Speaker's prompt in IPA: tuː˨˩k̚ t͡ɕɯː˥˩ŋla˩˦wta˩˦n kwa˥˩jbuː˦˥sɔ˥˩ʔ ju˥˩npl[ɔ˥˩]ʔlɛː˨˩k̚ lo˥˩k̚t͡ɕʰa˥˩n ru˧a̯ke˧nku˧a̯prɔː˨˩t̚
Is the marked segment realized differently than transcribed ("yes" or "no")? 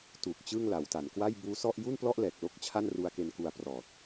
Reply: no